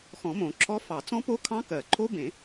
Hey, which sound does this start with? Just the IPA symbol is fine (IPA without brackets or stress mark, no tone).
x